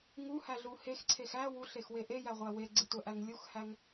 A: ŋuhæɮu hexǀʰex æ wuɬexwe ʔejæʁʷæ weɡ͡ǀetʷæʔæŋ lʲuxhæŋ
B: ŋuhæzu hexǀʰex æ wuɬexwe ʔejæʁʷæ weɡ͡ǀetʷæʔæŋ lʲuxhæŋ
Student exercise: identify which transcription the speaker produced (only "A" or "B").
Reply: A